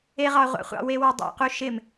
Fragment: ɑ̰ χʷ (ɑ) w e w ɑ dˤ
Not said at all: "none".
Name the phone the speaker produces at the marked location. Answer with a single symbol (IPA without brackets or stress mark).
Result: ɑ̰